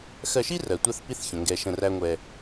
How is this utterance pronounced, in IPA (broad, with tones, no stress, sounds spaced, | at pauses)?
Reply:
x ɜ˧ ʃ i˦ r ɜ˨ tʷ ɜ˧ θ p i˦ θ ç ə̃˨ ŋ ɡ ɛ˧ ʃ ə̃˧ r æ˦ ŋʷ ɛ˧